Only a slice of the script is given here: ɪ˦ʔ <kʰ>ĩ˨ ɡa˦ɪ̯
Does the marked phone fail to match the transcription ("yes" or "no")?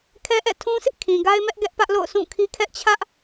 no